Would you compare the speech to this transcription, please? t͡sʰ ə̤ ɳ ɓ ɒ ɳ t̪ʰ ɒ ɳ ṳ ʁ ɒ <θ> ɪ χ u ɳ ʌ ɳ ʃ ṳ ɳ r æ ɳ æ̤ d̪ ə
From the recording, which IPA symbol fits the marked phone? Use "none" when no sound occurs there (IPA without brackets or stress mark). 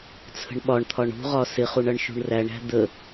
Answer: s